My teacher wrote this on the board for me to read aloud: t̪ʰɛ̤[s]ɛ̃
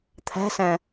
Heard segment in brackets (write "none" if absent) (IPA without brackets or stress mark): s